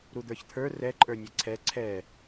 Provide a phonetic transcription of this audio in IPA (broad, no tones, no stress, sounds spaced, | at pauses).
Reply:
ɾ u d̪ ə˞ ç t̪ʰ ə˞ r ɛ ǃʼ ə˞ nʲ e ǀʰ ɛ ǀʰ ɛ